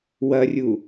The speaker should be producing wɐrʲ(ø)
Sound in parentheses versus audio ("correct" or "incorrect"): incorrect